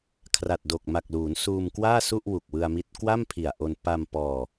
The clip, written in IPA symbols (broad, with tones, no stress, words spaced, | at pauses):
kʰra˨˩t̚do˨˩k̚ma˨˩k̚luː˩˦n suː˧mkwaː˥˩su˥˩ʔ wu˨˩k̚wɯ˧a̯mi˦˥t̚ kwa˥˩mpʰi˨˩a̯ʔo˧n pa˧m pɔː˧